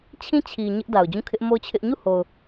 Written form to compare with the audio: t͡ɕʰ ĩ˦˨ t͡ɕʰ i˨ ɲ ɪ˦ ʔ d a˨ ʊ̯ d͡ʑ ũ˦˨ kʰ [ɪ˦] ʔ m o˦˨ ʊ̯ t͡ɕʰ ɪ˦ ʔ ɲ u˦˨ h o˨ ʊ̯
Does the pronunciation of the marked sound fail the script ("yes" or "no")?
no